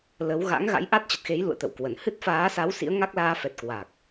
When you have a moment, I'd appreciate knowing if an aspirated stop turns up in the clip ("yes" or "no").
no